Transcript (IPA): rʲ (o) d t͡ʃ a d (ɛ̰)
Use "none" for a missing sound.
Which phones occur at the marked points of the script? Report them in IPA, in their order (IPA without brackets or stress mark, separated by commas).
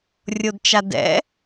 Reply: o, ɛ̰